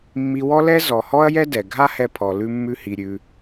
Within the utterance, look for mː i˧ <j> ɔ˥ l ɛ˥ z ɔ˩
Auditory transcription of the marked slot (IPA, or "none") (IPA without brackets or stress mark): w